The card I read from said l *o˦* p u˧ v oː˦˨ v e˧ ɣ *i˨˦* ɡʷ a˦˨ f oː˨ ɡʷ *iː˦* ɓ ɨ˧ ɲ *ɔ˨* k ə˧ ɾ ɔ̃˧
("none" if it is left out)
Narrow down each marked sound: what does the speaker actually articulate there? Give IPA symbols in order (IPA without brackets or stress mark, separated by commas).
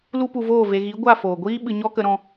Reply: u˦, i˨˦, iː˦, ɔ˦